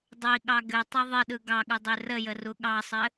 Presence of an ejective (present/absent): absent